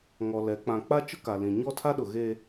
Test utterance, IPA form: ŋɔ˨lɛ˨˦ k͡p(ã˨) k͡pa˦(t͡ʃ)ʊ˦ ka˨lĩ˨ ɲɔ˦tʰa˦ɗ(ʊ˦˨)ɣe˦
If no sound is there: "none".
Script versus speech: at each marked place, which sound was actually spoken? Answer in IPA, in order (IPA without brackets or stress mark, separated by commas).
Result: ã˨, t͡ʃ, ʊ˨